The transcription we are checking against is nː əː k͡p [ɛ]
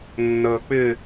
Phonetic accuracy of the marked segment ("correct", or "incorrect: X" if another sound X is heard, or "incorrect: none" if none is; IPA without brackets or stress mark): incorrect: ɪ